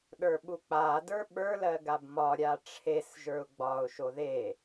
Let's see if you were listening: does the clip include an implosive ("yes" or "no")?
yes